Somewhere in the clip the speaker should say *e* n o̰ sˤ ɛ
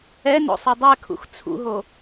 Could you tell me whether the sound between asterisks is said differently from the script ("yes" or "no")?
yes